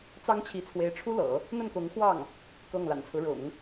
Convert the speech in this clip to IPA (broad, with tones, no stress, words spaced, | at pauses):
t͡sɑ˥ŋt͡ɕʰi˧˥t͡sʰwe˧˥ɪ̯ʈ͡ʂʰu˥ lɤ̰˨˩˦ | n̪ə˥˩nkʊ˧˥ŋxwɑ˥˩ŋ | kɤ˥˩ŋ la̰˨˩nt͡sʰɹ̩˦ɻʊ̰˨˩˦ŋ